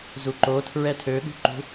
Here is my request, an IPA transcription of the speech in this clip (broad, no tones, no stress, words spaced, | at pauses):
zuǃo tʰɹɛtʰøɠṳǃṳ